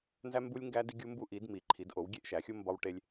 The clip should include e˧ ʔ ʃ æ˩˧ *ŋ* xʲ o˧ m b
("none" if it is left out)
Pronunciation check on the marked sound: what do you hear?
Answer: none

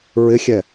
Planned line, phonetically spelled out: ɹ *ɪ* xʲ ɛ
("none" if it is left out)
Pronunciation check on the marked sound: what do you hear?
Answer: ɪ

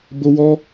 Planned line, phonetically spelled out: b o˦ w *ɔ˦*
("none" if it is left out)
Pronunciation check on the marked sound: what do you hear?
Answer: ɔ˦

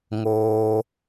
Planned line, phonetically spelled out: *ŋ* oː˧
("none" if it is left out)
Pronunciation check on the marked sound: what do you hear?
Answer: ŋ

